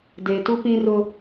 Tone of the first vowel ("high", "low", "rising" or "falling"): low